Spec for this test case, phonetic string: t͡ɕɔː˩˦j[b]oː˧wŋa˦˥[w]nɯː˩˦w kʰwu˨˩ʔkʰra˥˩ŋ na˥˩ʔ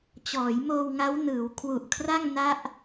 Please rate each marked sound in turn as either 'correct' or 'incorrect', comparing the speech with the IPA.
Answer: incorrect: m, correct

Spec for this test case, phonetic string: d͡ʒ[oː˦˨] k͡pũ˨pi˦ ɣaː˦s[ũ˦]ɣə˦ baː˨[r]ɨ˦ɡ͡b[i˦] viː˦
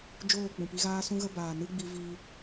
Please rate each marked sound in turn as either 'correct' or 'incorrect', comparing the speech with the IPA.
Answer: correct, correct, incorrect: n, incorrect: i˧

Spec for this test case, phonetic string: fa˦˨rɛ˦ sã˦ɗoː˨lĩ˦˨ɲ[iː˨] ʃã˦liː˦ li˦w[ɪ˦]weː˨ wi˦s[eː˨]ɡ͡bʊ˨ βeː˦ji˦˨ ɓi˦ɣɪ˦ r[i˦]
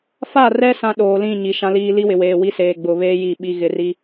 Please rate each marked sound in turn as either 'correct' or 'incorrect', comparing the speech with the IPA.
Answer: incorrect: i˨, incorrect: ɪ˨, correct, correct

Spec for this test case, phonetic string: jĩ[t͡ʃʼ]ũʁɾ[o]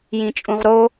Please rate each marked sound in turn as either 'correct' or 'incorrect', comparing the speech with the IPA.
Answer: correct, correct

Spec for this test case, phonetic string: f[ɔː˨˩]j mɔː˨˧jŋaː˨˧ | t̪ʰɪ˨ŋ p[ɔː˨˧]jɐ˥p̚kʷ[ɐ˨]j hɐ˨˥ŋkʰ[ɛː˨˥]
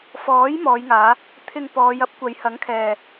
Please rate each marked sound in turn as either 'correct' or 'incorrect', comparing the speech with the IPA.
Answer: incorrect: ɔː˨˥, correct, incorrect: ɐ˨˧, incorrect: ɛː˨

